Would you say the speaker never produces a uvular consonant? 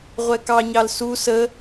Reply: no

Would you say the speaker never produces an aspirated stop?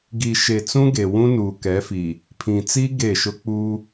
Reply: no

